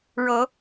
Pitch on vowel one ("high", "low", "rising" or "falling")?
rising